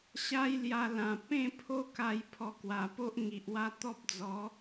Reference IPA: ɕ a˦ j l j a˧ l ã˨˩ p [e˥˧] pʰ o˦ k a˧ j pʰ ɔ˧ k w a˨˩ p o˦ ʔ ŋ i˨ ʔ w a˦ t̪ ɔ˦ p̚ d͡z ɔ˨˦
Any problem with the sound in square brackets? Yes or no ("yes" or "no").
yes